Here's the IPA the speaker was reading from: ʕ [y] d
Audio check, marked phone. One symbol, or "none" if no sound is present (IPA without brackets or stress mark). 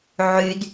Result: y